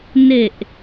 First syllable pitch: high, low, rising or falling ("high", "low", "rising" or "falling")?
low